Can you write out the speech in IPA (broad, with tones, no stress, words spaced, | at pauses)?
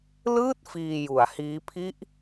lɯː˥˩t̚ fiː˧ju˩˦a̯hiː˦˥ pʰi˦˥ʔ